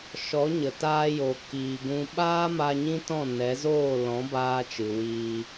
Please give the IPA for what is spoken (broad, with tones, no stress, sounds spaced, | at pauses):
ʃ ɔ˨˦ ɲ ə˨ t aː˧ j o˨ k iː˨ ɡ ũ˧ ɓ aː˦ m a˧ ɲ ĩ˦ t ɔ̃˦˨ n ɛ˨˦ z oː˦˨ l ɔ̃˨˦ b aː˧ t͡ʃ ɨ˨ w iː˧